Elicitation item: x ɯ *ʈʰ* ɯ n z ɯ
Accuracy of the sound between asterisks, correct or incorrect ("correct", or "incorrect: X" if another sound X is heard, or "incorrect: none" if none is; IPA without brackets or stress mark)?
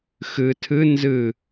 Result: incorrect: tʰ